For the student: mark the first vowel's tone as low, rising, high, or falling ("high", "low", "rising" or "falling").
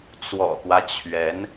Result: low